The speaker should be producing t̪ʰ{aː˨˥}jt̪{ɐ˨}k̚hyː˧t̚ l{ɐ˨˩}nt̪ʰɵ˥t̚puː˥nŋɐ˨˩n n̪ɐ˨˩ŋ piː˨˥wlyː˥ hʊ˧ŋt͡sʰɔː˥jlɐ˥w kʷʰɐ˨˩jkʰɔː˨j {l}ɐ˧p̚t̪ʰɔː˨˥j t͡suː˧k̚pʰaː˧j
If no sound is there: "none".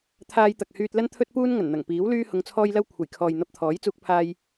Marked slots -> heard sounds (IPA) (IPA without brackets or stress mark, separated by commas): aː˧, ɐ˨, ɐ˥, n̪